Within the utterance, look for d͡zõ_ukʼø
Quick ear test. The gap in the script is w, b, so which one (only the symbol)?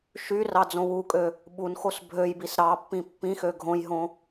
w